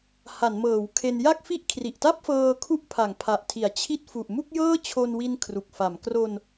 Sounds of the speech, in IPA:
ha˩˦nmɤː˩˦wkʰe˧n ja˥˩k̚fi˥˩ʔ kʰri˨˩ʔta˥˩p̚fɤː˧ kʰu˥˩ʔpʰa˩˦ŋpʰa˨˩ʔtʰi˩˦a̯ t͡ɕʰi˦˥t̚fu˨˩ʔmu˥˩k̚ jɤː˥˩t͡ɕʰo˧nwi˧n kʰru˨˩k̚fa˩˦m kro˧n

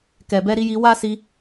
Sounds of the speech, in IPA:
kɛ˨bɛ˧ɾi˧ji˧ wa˦ si˧

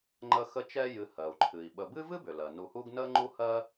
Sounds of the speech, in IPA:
ŋ͡ǃə˦ xə˦t͡ʃɛ˦ jɨ˨hɜ˩u̯ǃʰɨ˩i̯ ɓə˨bɨ˥vɨ˥bʏ˩ lɜ˩nu˨hu˦ɡ nə˥ŋ͡ǃu˥hɜ˥

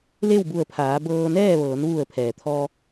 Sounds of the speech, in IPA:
le˥˨wbu˧˩ə̯pʰaː˩˧ bɤː˧nɛː˥˨ ʋɤː˩˧nʋu˧˩ə̯pʰɛː˩t̪ʰɔː˧

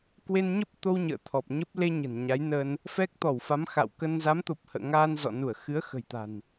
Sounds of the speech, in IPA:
kwe˧nɲə˦˥p̚ t̪o˧w ɲə̰ː˧˨t̪ʰɔ˨˩p̚ɲə˦˥p̚ le˧ ɲə̤˨˩nɲa˨˦jnə˧n | fɛ˦˥k̚t̪ɔ˧˩w fa˨˦mxa̰˧˨wkə˧n za˨˦mt̪o˨˩p̚ hə̰ː˧˨ŋaː˧nzɔ̰˧˨ nu˧˩ə̯xɨ˨˦ə̯ xə̤˨˩jt̪a̤˨˩n

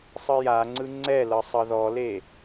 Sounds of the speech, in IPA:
sˤɯjaŋ͡ǀɯ ŋ͡ǀɛlɤ sˤɤðɔle

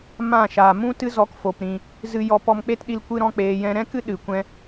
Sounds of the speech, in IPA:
mã˦˨ʃa˨ mũ˦tɨ˦zɔ˧k fo˨p ɾĩ˨ | zɨ˧ jɔ˧ pɔ˧mk͡pe˦tɗi˧l kʷɨ˦ɾɔ̃˦ k͡peː˧jɛ̃˦ ɾɛ̃˦kɨ˦ ɗɨ˨kʷɛ̃˧

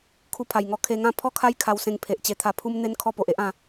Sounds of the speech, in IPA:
kʰu˧pʰa˨˩jŋɔ˧ kʰe˧ŋã˥˧ pʰɔ˦kʰa˦j kʰa˧wsẽ˧ŋpʰe˨ʔ t͡ɕe˧t̪ʰa˧ pʰu˦mn̪e˦n kʰɔ˥˧po˨ʔe˦ʔ ã˧

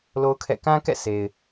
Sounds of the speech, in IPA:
lo˦ʊ̯kʰɛ̰˦˨ kã˦kɛ̰˦˨ sʰe˨ɪ̯

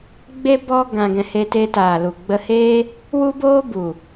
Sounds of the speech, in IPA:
ɡ͡be˦ bɔ˦ɡã˧ɡɛ̃˧ he˧te˧ taː˨lu˨ɡ͡bə˧heː˦ | wu˦boː˦ bu˨

